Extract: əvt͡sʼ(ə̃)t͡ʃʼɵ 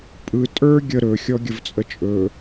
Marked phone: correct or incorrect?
incorrect